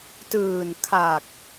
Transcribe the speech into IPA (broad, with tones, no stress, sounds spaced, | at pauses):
t ɯː˨˩ n kʰ a˨˩ k̚